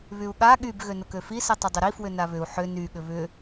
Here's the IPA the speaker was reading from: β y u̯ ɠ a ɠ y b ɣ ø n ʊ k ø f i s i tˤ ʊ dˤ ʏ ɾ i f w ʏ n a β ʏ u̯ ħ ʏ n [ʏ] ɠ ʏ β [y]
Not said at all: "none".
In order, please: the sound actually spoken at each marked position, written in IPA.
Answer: y, ʏ

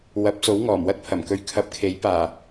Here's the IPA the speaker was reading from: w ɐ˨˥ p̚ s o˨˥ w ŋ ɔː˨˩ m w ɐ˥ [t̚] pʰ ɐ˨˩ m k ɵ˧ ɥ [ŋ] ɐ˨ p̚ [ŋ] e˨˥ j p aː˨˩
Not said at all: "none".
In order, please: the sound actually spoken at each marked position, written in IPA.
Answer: t̚, kʰ, kʰ

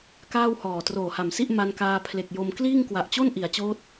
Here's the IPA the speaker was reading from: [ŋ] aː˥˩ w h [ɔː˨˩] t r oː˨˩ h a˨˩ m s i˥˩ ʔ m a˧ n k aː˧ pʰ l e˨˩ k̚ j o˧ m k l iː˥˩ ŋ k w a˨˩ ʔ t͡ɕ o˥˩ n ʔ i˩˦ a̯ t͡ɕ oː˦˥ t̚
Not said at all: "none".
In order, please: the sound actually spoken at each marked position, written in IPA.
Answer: k, ɔː˨˩

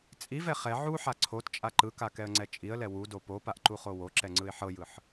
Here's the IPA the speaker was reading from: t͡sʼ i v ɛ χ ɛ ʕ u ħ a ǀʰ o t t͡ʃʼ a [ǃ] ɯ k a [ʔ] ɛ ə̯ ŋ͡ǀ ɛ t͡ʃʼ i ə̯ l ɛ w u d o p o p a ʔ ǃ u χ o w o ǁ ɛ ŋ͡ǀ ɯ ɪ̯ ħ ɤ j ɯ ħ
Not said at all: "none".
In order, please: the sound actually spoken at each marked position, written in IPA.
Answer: ǃ, k

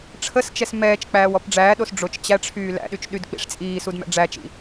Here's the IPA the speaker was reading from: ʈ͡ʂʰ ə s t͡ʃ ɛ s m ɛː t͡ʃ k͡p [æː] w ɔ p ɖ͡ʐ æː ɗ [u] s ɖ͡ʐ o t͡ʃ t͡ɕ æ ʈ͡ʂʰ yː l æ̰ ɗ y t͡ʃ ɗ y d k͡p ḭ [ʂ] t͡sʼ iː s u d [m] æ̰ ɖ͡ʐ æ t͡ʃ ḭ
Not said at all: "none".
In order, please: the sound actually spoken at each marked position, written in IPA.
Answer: æː, o, ʂ, m

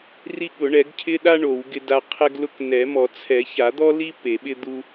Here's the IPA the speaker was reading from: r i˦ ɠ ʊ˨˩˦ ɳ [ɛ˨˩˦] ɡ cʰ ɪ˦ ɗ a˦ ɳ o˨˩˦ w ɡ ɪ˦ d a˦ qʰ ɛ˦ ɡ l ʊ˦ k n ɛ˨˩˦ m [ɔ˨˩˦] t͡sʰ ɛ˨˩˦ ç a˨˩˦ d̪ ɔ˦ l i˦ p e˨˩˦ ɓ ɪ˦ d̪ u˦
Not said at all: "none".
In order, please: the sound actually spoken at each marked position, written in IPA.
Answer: ɛ˨˩˦, ɔ˨˩˦

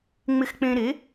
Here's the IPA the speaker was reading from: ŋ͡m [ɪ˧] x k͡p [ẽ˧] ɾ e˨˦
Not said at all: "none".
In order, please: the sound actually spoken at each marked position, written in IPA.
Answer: ɪ˧, ẽ˧

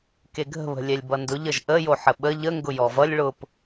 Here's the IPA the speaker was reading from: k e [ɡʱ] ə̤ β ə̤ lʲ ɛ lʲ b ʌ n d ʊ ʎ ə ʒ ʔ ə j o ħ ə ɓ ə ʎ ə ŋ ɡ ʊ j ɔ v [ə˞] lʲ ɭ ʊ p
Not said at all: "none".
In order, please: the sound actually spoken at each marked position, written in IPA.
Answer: ɡʱ, ʌ

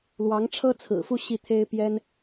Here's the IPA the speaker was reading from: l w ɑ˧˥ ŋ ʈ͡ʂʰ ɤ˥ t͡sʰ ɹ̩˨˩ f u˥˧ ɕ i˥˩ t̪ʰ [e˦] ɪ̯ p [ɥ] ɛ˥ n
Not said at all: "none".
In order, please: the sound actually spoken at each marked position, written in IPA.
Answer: e˥, j

